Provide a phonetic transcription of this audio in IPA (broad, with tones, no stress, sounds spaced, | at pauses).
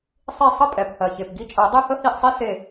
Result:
sˤ i˦˨ sˤ ə˦ pʼ ɛ˨˩ p h ɜ˨˩ ç e˨˩ p ɡ i˦ t͡ʃʼ ɜ˨˩˦ dˤ e˦ h ə˦ h i˦˨ ʔ sˤ i˦ s e˦˨